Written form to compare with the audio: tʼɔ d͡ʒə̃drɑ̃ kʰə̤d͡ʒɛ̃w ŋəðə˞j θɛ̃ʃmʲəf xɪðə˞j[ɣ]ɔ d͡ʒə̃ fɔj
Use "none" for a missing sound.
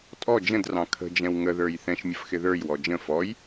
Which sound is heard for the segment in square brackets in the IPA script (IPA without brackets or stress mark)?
w